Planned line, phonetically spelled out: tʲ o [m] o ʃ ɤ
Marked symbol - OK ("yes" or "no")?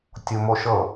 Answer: yes